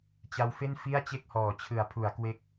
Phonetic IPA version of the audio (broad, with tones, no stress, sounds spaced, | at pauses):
t͡ɕ a˦˥ w f e˥˩ n f i˥˩ a̯ t͡ɕ e˥˩ k̚ h ɔː˩˦ t͡ɕʰ ɯ˩˦ a̯ pʰ u˩˦ a̯ k w e˦˥ k̚